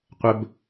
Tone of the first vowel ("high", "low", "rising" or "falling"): low